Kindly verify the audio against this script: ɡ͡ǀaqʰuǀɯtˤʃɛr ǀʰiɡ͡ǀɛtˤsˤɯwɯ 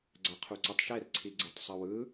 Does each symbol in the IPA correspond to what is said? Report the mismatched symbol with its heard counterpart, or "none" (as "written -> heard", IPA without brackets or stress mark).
none